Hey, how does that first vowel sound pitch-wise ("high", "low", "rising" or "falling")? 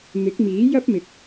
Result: rising